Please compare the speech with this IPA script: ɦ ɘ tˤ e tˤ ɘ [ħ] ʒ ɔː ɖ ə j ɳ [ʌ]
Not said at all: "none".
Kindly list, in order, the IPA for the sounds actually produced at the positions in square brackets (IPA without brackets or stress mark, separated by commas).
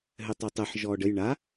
ħ, a